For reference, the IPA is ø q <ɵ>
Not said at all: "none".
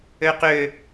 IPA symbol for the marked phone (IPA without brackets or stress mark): ø